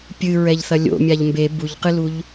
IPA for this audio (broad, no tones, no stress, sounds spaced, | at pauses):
pʲ ɨ ɹ ɛ ʎ θ ɐ lʲ o̰ mʲ a ʎ m b e b u ʎ q ɨ l u ʎ